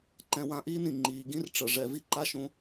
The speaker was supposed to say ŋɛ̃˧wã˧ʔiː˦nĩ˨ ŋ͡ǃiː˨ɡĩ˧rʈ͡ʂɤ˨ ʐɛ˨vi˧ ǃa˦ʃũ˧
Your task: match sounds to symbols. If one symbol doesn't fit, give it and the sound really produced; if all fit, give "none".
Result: ŋ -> ǃ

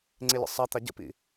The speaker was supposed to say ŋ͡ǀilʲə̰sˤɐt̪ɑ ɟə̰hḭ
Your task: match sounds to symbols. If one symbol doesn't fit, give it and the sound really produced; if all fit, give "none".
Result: h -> p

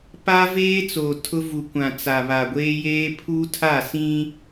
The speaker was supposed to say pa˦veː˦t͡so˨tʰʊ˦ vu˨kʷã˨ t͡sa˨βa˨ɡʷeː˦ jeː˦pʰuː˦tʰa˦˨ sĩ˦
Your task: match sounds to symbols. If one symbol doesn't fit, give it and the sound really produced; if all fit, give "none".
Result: none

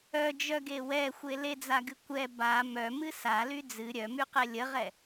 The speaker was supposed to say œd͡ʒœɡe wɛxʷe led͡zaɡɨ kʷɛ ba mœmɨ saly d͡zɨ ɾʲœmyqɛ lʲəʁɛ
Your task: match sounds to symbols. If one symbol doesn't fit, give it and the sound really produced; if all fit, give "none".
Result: none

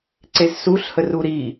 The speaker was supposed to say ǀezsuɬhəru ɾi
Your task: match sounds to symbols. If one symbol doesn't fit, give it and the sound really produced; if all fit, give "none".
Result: none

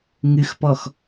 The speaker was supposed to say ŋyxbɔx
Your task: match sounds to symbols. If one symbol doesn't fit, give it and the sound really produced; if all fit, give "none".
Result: b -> p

